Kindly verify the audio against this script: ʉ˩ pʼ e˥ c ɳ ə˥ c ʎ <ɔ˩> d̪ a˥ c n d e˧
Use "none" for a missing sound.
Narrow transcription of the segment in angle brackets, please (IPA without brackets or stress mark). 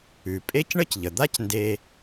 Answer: ə˩